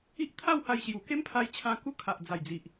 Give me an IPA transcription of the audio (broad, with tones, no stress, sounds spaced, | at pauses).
i˦ ʔ t̪ʰ a˥˧ w h a˧ j ɕ j u˨˩ k e˦ m pʰ a˧ j t͡ɕʰ ã˧ k u˦ kʰ a˨ ʔ d͡z a˨˩ j d͡z i˨ ʔ